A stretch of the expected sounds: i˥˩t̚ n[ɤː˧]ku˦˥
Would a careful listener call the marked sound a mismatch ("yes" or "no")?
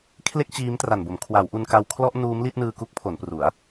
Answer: yes